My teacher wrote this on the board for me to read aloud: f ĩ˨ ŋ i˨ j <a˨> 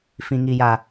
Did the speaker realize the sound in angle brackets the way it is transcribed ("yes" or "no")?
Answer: yes